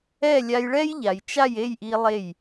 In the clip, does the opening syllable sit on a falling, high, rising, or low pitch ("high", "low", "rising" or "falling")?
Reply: falling